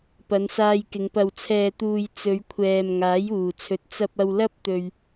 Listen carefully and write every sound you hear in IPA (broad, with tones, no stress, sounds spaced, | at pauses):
p ɐ˨˧ n s aː˧ j k ɪ˨˧ ŋ p ɐ˨ w t͡sʰ ɛː˨ t̪ uː˨ j t͡s ɵ˨˧ ɥ kʷʰ ɛː˨ m ŋ aː˨˥ j uː˨˩ t͡sʰ ɵ˨˥ t̚ t͡s ɐ˧ p̚ ɐ˧ w l ɐ˥ p̚ t̪ ɵ˧ ɥ